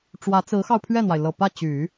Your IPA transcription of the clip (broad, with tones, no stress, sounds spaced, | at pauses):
ʈ͡ʂ w ä˧˥ t͡s ɹ̩˧˥ x ɑ˧ ʊ̯ pʰ ɥ ɛ˥˩ n̪ w a˩ ɪ̯ l ɤ˨˩ p ä˥˩ t͡ɕ y˨˩˦